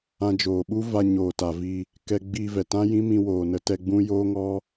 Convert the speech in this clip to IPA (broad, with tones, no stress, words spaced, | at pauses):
ã˧d͡ʒoː˨ɓu˦va˧ ɲoː˨ta˨vi˧ | kɛ˧ɡ͡bi˧ vɛ˨tã˦jĩ˦ mĩ˧woː˨nə˨˦tɛ˧ ɡ͡bũ˦ joː˦ŋɔ˦